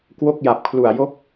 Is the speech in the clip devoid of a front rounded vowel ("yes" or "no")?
yes